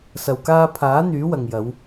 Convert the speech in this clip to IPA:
s ɐ˨ w k aː˧ pʰ aː˨˥ n̪ yː˨˥ w ɐ˨ ŋ j ɐ˨˧ w

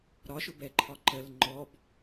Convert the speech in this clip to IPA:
ɾ ɒ ʃ ʊ b ɛ ǃʰ ɒ ǃ ə l ŋ͡ǃ ɔ b

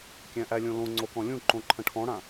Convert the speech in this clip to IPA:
kʲ æ̃ ʔ æ lʲ õ l õ ŋ͡ǀ o k ɔ̃ lʲ ũ ǃ õ ǃʰ ə̃ ʈʰ ɔ̃ ɽ ã

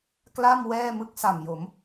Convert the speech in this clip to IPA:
k l a˥˩ m w ɛː˥˩ m ɯ˦˥ k̚ s a˨˩ m j o˩˦ m

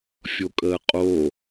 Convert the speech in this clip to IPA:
fʲ o kʼ əː qʼ o

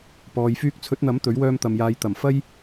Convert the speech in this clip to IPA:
p ɔː˨ j f yː˧ k̚ t͡sʰ ɵ˨˥ t̚ n̪ ɐ˨˥ m t̪ ɵ˨˥ ɥ w œː˧ m t̪ ɐ˨ m j aː˨˧ j t̪ ɐ˨˩ m f ɐ˥ j

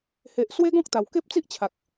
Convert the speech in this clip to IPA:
h e˨ ʔ s w e˦ ɡ ɔ̃˦ k̚ t̪ a˨˩ w k e˦ p̚ t͡s i˦ ʔ t͡ɕʰ a˨ k̚

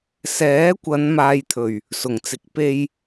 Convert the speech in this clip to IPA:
s ɛː˨˥ kʷ ɐ˨˧ n m aː˨ j t̪ʰ ɵ˨˩ ɥ | s ʊ˨˩ ŋ t͡s ɪ˨ k̚ p e˧ j

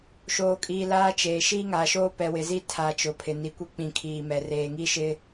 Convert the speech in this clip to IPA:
ʃ oː˨ kʼ iː˨ l aː˦ t͡ʃ eː˨ ʃ iː˦ ŋ aː˨ ʃ oː˦ p ɛ˨ w ɪ˨ z i˦ tʰ a˨ t͡ʃ ʊ˨ pʰ ɪ˨ n i˨ kʷ i˦ k͡p ĩ˨ kʰ iː˨ m ɛ˨ r eː˨ ŋ i˦ ʃ ɪ˦

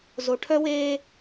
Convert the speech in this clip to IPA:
z o˨ ʈʰ œ˦ w eː˦

